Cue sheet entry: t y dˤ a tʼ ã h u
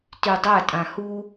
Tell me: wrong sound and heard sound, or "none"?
none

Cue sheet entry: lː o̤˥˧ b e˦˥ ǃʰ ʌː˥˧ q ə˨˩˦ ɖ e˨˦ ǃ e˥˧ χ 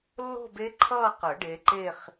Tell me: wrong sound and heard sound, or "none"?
none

